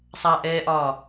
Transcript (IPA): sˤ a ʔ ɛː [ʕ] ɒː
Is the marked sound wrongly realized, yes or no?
yes